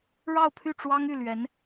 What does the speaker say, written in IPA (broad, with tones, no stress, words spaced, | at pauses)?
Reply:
ɻɑ˥˧ʊ̯pʰy˥˩ ʈ͡ʂwɑ˥ŋy˥˩lɥɛ˧˥n